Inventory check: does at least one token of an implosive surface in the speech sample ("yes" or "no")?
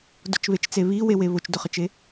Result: no